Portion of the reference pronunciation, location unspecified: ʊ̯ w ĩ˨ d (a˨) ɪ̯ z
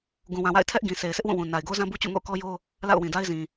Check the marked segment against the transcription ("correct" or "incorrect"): incorrect